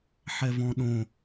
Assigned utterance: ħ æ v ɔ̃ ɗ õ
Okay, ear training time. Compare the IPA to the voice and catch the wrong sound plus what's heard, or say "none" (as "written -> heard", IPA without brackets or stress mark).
æ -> ɛ